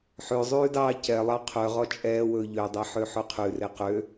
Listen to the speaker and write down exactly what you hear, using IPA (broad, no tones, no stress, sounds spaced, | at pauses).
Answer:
ħ ø zˤ ʉː d ɑː c ɛ lˠ ɑ qʰ œ ʁ ɔ t͡ʃʼ ɛː w ɵː ʎ ø dˤ e ħ ø ħ ɵ qʰ ʉ r e q ø